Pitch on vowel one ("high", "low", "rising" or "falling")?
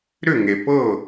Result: falling